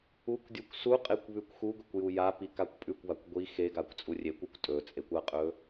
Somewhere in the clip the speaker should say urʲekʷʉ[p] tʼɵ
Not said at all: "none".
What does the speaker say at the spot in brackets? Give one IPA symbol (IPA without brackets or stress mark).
kʷ